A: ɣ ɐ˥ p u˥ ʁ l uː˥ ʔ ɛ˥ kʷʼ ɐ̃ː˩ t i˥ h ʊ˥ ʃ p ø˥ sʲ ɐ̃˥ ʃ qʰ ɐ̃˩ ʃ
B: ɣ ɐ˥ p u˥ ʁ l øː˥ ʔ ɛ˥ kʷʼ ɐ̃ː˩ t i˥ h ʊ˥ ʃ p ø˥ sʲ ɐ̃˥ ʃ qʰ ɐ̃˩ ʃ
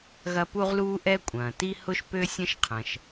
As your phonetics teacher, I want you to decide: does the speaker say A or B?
A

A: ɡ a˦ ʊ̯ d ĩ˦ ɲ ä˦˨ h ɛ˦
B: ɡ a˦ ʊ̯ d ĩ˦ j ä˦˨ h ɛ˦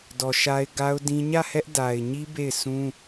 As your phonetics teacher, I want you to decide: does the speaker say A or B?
A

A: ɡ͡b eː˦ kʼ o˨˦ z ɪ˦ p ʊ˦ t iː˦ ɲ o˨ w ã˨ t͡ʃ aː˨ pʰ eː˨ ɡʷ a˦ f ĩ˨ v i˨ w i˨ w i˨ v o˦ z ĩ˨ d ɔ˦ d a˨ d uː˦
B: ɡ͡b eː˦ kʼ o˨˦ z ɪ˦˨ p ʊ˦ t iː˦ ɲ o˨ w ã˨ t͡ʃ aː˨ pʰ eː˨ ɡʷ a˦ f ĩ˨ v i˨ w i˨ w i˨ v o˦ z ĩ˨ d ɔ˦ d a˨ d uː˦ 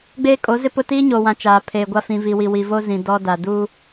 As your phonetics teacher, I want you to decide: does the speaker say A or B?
A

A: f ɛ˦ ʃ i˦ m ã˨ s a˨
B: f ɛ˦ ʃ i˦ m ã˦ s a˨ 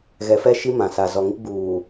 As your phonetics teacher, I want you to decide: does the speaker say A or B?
A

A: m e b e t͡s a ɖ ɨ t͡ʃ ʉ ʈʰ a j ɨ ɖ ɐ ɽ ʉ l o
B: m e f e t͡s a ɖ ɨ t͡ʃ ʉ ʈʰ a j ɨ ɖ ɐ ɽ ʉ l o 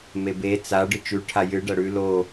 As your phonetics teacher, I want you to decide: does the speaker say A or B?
A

